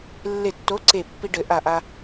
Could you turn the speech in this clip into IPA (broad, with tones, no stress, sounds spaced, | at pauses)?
lː e˧˩ tː o˨˥ ǀ e˧˩ pː i˧ ɖ ɘ˨˩˦ ʔ a˧˩ ʔ a˧